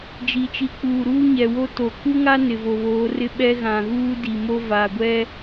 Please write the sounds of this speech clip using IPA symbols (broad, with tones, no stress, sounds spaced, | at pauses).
d͡ʒ i˨ t͡ʃ i˨˦ k͡p uː˨ ɾ uː˦ ɲ ɛ˨ w o˦ t o˨ k u˦ ŋ a˦ n ɪ˨ v o˨ β oː˨˦ r ɪ˦ ɓ ɛ˦ ɣ ã˨ ɣ uː˦ d i˨ m o˦ v a˨ ɡʷ ɛ˦